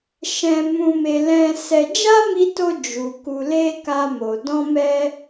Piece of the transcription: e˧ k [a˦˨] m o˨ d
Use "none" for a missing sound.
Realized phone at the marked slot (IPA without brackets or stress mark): a˧